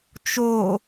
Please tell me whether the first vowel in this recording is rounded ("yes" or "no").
yes